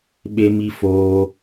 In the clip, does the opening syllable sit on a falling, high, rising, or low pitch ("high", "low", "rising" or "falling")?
high